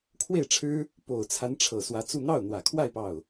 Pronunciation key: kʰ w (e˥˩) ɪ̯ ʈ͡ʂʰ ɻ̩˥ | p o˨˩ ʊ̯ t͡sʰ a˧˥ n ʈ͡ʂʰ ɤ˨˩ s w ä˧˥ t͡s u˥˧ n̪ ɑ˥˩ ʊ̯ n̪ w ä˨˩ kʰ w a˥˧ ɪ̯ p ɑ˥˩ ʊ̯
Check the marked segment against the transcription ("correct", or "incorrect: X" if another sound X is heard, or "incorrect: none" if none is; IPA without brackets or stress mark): correct